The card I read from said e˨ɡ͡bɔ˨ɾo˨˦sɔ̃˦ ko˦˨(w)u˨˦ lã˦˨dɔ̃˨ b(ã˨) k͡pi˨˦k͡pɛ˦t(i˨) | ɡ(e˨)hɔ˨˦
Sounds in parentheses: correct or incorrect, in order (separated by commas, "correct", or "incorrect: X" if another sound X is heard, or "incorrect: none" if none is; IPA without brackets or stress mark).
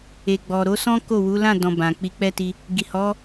correct, correct, incorrect: i˧, incorrect: i˨